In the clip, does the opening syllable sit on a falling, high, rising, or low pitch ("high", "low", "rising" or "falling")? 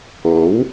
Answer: rising